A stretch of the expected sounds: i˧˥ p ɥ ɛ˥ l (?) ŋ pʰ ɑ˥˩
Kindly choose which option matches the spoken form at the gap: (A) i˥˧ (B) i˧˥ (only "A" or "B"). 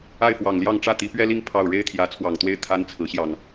A